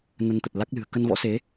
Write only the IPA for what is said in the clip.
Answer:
n ə˧ n t̪ ə˨˩ t̚ l a˦˥ k̚ l ɨ̤˨˩ ə̯ k ə˧ n v ɔ̰˧˥ s e˨˦

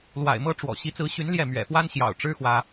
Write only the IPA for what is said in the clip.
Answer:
l w a̰˨˩ ɪ̯ m ɤ˥ ʈ͡ʂ w ɔ̰˨˩ ɕ i˧˥ t͡s ɹ̩˧˥ ɕ y˧˥ n l j ɛ˥˩ m ɥ ɛ̰˨˩ f w a˥ n ɕ j ɑ̰˨˩ ʊ̯ ʈ͡ʂ ɻ̩˥ x w ä˥

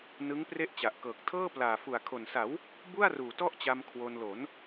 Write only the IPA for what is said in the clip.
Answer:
n ɯ˦˥ ŋ p r e˥˩ ʔ t͡ɕ a˨˩ ʔ k ɤː˨˩ k̚ tʰ ɤː˥˩ p l aː˨˩ f u˨˩ a̯ kʰ o˨˩ n s a˩˦ w | b u˥˩ a̯ r uː˨˩ t ɔ˥˩ ʔ t͡ɕ a˧ m kʰ w o˧ n l o˩˦ n

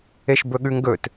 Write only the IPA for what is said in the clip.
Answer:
e ʃ b ɵ ɠ ʉ ŋ ɡ ɵ t

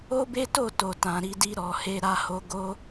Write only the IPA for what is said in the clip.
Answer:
o˦ b e˦ t o˦˨ t o˨ t ã˨ ɾ i˧ d i˧ ɾ ɔ˨ h e˧ ɾ a˧ h o˧ ɡ o˦

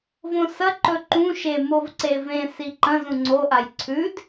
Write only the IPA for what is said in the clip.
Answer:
v õ s ɐ ǃ ɵ ǃ ũ ʃ e m o v ǀ e v ẽ s i ǃ ɐ̃ z ũ ŋ͡ǀ o ʔ a j ǀʰ ʉ d

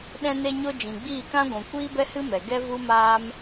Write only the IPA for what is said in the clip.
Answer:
ɗ ɛ̃˧ n e˧ ɲ o˧ d͡ʒ ĩ˨ ɡ͡b iː˦˨ k ã˦ ɡʷ ũ˨ kʷ iː˦ b ɛ˦ h ɨ˦ m ɛ˨ ɡ ɛ˦ v u˦ m aː˦ m

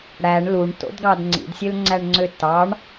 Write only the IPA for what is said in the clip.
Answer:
ɽ æ ɳ l u ɳ t o̰ d ɡ ɑ d ŋ͡ǀ ḭ d sʲ ø l ŋ͡ǀ æ ɳ ŋ͡ǀ ø t ɑ ɳ

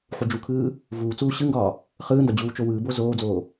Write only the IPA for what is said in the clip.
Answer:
ħ u d͡ʒ u kʰ ɯː | v uː t͡s uː ɕ ɯ ŋ ɡ ɒː | χ ɯː n d ɒ d͡ʑ uː t͡ʃ o w ɯː b o z oː d͡z oː

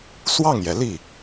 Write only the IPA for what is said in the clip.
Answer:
s w ɑ˥˩ ŋ j ɛ˩ l i˥˩

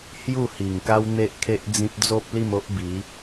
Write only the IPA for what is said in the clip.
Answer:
h j u˥˧ h i˨˩ ŋ k a˦ w n̪ e˦ ʔ kʰ e˦ ʔ d͡z ĩ˦ p̚ d͡z o˦ p̚ l i˥˧ m o˦ ʔ b i˨˦

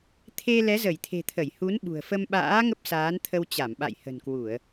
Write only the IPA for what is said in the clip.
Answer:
t̪ʰ e˧ l ɛ˨˦ z ə˧˩ j t̪ʰ e̤˨˩ t̪ʰ ə˧˩ j h u˨˦ n ɓ ṳ˨˩ ə̯ f ə˧ m ɓ a̰ː˧˥ ŋ ə˦˥ p̚ s aː˨˦ n t̪ʰ ə˧ w t͡ɕ a˧˩ m ɓ a̰˧˨ j h ə̤˨˩ n k w u˧˩˨ ə̯

